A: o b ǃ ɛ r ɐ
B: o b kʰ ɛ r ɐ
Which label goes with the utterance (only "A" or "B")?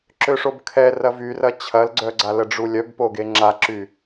B